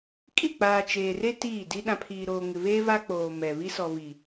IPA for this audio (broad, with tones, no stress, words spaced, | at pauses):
kʼi˦˨k͡paː˨ t͡ʃeː˨re˦ tiː˦˨di˦ ɗã˨pʰiː˨ɾoː˨ ŋɪ˨βeː˦ βa˦k͡poː˨ mɛ˨ βi˦sɔ˨βi˨